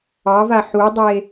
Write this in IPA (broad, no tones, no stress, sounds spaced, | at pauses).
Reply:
ɑ v a ħ u dˤ e